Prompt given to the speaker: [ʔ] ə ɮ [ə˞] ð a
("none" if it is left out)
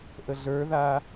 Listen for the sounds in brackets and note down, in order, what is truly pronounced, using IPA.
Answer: ʔ, ə˞

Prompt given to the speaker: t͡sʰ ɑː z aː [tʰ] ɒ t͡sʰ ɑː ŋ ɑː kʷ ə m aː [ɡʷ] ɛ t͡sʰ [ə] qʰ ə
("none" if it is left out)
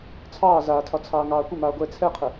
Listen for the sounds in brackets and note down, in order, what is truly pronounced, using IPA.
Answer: tʰ, ɡʷ, ɛ

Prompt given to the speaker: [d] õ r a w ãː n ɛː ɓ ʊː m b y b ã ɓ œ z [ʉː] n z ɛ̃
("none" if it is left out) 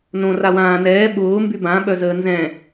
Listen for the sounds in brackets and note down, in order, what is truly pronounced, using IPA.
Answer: n, əː

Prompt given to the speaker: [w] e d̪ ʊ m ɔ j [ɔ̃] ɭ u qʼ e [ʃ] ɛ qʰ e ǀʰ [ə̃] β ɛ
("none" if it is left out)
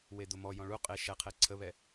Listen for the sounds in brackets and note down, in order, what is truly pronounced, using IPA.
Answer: w, ɔ̃, ʃ, ə

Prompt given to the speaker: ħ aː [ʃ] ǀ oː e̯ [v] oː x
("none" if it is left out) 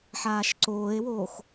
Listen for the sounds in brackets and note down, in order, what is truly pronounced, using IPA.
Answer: ʃ, w

